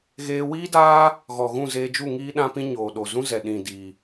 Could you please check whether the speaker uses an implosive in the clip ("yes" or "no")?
yes